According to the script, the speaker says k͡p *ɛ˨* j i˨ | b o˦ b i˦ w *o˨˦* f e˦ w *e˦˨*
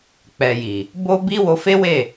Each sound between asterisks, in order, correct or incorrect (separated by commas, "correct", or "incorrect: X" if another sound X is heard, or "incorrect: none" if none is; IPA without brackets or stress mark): correct, incorrect: o˧, correct